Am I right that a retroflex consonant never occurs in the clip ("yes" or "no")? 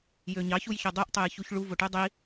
no